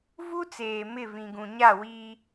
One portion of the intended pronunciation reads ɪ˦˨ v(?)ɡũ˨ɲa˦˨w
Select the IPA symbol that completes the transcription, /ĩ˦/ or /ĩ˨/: ĩ˨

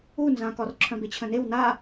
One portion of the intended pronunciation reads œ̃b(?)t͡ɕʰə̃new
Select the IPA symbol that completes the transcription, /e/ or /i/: e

